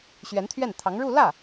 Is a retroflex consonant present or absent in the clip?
present